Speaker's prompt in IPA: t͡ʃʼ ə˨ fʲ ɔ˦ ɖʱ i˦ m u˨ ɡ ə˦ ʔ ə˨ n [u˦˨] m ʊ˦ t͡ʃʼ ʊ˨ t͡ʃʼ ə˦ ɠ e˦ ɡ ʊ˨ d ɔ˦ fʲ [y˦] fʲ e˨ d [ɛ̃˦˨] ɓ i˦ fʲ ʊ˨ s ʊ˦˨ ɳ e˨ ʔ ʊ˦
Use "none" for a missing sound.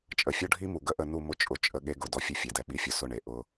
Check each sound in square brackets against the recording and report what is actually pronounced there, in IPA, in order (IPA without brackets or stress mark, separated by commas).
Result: u˦˨, e˦, ɛ˦˨